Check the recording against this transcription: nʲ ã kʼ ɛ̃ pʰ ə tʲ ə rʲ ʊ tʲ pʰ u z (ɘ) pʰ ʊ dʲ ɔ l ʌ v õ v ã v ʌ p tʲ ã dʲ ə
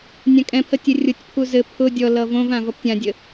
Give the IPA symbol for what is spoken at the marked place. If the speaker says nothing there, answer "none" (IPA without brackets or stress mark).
ɘ